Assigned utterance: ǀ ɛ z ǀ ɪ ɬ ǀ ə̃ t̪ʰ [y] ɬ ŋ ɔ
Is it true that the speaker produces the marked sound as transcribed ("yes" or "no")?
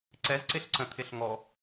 no